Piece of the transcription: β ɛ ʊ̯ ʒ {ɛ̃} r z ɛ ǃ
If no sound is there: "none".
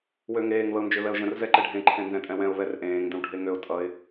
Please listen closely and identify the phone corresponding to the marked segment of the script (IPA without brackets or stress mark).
ə̃